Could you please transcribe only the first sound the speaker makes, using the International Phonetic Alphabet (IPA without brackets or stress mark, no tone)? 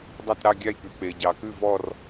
dˤ